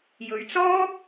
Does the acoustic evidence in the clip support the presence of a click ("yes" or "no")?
no